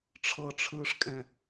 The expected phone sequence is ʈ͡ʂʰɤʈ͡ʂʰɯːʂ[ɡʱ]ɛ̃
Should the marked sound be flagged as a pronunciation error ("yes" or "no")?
yes